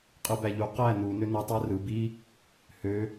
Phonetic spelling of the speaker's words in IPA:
qʼ ɯ b æ ʎ u q æ n u n ø n ɯ tˤ æ r ɯ b i | h ø

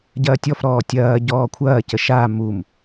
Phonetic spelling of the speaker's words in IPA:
ɟ ɐː tʲ ɔ f ɾ ɔː tʲ ɐː ɟ ɔː kʷʰ ɐː c ə ʃ a m u m

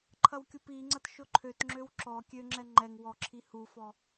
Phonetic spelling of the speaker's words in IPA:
ǃʰ ɐ w kʲ u p i ŋ͡ǀ ɐ t ʃ ʊ ǃʰ ø t ŋ͡ǁ ø w ǁ ɔ kʲ ø ŋ͡ǁ ɛ ŋ͡ǃ ɛ ŋ w ɔ ǁʰ i h u f ɔ

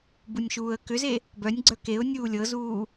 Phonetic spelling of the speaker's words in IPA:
b u nʲ ʃ uː ə̯ k ʏ z e | b œ nʲ ɡ͡ǀ œ k e ʊ̯ nʲ uː lʲ ɤ z uː

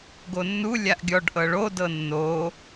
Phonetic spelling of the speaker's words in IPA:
ɡ o nː u lʲ a ʔ ɡʲ ɔ ɖ ʔ ɤ ɭ o d ɤ nː o

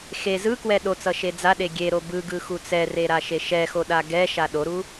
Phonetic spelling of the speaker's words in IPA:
x e z ɯ k w ɛ ɗ o t͡s ʌ ʃ e d͡z a ɗ e ɡʲ e ɾ o b ɯ ɡ ɯ x u t͡s ɛ r e ɾ a ʃ e ʃ ɛ x o ɗ a ɡ ɛ ʃ a ɗ o ɾ u

